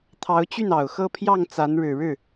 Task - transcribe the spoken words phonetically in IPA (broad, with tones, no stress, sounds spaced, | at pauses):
t̪ʰ ɑ˧˥ ʊ̯ t͡ɕ y˥˩ n ɑ˨˩ ʊ̯ x ɤ˥˧ pʰ j ɑ˥˩ ŋ t͡s a˧˥ n ɻ ɻ̩˨˩ ɻ ɻ̩˥˩